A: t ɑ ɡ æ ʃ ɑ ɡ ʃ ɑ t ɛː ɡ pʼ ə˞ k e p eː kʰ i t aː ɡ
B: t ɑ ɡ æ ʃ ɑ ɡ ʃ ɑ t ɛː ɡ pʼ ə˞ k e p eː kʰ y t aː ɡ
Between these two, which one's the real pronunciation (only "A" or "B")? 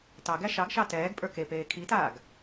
A